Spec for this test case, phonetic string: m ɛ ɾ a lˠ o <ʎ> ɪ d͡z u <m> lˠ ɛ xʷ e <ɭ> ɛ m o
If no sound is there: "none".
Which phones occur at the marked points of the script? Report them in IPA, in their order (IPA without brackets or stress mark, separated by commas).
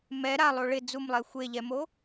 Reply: ɭ, m, ʎ